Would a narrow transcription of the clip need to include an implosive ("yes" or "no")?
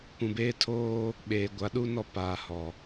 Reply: yes